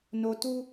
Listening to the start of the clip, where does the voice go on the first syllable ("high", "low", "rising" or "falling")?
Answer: low